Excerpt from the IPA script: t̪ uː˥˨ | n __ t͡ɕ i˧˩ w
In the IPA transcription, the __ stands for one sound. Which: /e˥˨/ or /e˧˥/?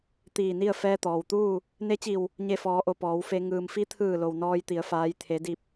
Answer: e˧˥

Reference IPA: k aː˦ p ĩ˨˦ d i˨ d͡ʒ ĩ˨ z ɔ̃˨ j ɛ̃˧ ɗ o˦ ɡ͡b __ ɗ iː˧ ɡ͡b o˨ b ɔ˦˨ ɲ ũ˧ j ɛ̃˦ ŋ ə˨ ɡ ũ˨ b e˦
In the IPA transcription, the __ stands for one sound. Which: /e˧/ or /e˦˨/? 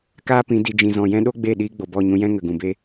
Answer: e˦˨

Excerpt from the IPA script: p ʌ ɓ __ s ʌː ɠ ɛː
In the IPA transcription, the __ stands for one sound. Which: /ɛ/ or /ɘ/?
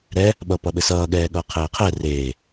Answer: ɘ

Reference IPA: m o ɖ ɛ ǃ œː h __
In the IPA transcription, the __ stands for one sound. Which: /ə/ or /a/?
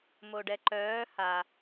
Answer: a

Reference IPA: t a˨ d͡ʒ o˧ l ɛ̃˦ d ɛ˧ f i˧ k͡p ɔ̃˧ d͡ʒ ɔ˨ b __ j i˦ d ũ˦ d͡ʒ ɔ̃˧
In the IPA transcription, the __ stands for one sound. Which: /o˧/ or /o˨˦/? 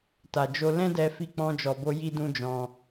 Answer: o˧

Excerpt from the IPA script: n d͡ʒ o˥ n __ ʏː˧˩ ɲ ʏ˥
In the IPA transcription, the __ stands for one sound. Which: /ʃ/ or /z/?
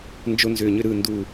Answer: z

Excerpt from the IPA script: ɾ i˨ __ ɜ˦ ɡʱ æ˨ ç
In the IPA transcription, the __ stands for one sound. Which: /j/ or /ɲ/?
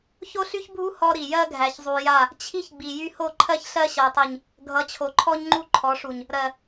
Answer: j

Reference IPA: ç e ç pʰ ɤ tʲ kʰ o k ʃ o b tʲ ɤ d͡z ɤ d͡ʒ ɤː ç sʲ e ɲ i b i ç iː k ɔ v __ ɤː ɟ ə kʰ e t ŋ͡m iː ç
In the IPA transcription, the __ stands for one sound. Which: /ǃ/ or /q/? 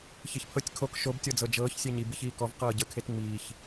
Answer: q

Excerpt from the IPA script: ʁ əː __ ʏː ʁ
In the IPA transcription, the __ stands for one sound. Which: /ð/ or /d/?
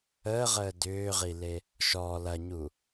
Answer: d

